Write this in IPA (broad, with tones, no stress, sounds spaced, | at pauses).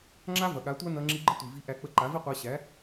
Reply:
ŋ͡ǁ a˦ v ɐ˨ ɠ a˨˦ tʷ a˦ n ɐ˧ ŋ͡ǁ i˧ ɡ͡ǃ ə˦ tʷ i˨ v i˧ ʔ æ˧ k͡p ə˧ ǃ a˨˦ v i˦ qʷ æ˧ ɕ æ˨˦